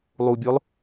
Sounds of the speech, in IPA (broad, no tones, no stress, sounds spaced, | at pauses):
lˠ u bʲ o lˠ